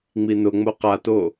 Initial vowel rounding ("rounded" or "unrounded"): unrounded